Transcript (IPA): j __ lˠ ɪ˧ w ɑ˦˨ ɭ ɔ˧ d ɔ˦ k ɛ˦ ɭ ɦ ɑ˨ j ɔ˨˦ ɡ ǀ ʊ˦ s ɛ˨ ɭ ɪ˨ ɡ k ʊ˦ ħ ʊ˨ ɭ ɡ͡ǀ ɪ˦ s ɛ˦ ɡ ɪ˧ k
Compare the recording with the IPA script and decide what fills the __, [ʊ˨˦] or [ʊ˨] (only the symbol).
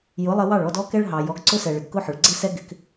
ʊ˨˦